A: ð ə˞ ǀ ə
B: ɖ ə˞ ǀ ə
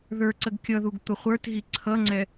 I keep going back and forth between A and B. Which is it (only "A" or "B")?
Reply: A